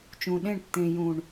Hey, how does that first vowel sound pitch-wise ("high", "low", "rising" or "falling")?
low